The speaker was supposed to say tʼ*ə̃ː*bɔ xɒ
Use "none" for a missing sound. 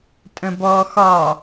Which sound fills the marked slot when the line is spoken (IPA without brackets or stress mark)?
ə̃